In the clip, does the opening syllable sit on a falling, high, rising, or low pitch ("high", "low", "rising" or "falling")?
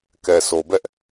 low